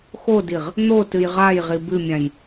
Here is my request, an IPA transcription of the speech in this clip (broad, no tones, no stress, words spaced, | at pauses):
xodiʁ | n̪otɨj ʁajʁi bɨmʲãj